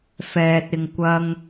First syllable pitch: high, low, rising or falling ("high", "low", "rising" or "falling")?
low